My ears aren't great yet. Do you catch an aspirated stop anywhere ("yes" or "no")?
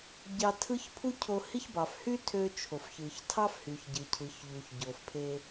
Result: yes